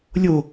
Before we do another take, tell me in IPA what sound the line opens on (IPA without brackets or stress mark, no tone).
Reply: lʲ